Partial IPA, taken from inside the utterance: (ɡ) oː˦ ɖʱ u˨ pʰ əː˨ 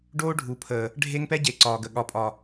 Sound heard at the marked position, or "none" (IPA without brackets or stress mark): ɖ